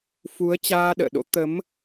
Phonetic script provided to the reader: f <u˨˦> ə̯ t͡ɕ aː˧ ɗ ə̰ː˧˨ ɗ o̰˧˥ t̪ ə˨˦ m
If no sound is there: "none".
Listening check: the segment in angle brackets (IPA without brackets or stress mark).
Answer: u˨˦